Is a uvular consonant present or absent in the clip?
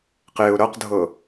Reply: present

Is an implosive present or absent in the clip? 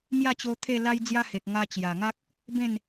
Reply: absent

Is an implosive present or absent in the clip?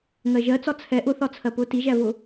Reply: absent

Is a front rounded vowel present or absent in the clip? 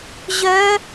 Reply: present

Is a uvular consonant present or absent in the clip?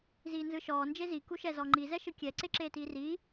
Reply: absent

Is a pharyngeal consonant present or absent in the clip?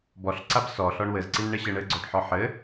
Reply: present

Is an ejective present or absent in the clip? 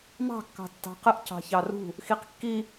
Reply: absent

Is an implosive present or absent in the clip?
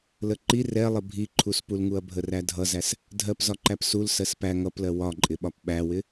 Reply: present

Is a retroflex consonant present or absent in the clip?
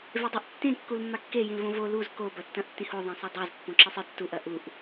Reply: absent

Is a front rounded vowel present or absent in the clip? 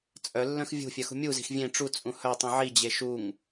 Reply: present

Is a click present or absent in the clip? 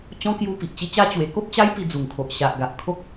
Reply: absent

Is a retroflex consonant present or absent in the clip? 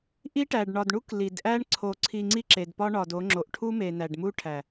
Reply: present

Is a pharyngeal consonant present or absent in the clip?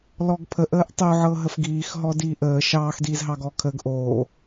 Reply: present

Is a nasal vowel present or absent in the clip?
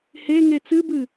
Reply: absent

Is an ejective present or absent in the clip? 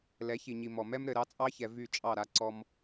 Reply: present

